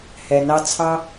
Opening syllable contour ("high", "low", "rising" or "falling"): low